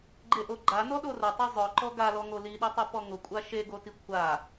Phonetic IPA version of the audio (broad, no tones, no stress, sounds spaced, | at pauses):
ɡ͡ǃ e ʔ o ɡ͡ǃ a n ɔ ɗ o r ʊ tˤ e zˤ ʊ ǃ ɔ ɡ a l ɔ ŋ o l i ɗ i tˤ e p ɔ ŋ ʊ kʷʼ a ʃ e ɡ o t i kʷʰ a